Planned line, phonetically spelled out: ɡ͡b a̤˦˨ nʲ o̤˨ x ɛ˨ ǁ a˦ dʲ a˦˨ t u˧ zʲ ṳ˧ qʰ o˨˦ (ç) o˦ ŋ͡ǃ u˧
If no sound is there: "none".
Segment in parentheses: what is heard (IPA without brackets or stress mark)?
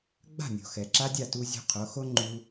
x